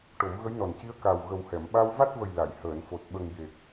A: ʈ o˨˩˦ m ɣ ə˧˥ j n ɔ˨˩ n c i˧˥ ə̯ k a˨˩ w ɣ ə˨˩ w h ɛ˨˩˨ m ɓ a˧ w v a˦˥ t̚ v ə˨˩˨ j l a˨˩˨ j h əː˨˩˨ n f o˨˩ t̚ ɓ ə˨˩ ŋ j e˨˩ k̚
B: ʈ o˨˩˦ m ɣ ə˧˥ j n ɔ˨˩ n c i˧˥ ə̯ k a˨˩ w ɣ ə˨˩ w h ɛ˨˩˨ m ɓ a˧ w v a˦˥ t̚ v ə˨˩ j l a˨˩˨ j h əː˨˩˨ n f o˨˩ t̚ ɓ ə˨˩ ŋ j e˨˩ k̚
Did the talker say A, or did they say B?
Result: B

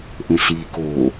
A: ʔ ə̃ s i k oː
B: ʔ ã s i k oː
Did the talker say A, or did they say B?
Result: A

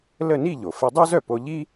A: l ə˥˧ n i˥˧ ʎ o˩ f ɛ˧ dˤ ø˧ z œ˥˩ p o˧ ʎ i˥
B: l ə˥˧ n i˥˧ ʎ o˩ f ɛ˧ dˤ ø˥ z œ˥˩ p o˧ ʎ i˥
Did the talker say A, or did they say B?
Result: B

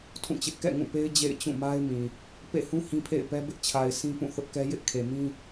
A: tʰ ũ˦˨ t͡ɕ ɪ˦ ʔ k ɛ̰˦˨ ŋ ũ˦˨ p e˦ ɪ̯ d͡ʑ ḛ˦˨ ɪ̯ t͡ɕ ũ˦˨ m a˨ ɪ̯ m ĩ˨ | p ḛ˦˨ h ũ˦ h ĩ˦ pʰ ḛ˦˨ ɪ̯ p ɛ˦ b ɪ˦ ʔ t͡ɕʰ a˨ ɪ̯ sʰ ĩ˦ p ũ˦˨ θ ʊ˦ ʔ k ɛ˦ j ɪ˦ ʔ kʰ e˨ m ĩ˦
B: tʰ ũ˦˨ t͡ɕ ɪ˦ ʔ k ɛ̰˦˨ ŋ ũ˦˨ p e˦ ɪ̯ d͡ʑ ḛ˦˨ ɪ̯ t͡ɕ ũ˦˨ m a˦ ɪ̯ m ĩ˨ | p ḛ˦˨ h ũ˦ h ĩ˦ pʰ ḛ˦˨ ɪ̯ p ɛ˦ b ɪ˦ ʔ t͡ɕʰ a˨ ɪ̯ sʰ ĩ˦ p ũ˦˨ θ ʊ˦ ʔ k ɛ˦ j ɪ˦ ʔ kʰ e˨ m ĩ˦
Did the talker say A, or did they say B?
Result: B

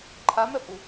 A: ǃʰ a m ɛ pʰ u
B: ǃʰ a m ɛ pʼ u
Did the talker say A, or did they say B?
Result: B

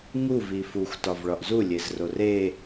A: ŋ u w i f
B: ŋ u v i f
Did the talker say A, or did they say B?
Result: B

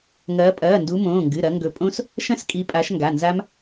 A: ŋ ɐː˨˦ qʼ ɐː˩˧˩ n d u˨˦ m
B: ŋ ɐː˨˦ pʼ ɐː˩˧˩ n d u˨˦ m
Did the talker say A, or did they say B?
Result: B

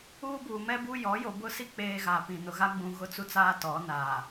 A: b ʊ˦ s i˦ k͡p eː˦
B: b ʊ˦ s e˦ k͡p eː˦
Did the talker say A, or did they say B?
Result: A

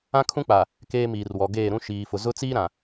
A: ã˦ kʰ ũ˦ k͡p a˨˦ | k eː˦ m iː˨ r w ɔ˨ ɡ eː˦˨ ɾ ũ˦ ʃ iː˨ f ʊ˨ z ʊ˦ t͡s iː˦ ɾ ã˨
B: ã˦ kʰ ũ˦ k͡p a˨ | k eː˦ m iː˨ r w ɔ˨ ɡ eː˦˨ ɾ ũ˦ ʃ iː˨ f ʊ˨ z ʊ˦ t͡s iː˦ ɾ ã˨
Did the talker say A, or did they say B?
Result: B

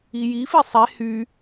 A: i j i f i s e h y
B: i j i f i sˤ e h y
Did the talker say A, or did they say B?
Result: B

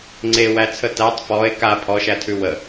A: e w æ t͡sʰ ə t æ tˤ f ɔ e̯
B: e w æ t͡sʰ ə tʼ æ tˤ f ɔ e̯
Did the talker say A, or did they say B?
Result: A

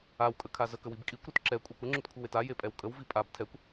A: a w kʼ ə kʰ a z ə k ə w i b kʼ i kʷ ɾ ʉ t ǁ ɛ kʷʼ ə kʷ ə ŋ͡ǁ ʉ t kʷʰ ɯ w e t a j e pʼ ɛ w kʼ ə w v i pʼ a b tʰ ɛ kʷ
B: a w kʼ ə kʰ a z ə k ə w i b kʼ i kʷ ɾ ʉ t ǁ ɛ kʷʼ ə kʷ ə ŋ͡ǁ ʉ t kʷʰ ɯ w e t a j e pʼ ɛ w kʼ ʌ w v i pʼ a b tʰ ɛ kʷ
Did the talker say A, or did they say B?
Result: A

